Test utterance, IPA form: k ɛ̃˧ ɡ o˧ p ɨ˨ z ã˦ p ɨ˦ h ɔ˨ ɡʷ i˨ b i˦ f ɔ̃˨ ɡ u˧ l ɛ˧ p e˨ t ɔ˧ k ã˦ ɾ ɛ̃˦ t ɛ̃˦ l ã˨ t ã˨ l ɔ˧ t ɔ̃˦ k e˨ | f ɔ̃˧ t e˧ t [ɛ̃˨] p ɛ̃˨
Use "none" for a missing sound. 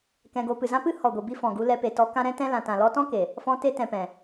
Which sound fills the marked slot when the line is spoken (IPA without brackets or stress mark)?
ɛ̃˨